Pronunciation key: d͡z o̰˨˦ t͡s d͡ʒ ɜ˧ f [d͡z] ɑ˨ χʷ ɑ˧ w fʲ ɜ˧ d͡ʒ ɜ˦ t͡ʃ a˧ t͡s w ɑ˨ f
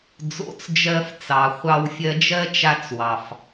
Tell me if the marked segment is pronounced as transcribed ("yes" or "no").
no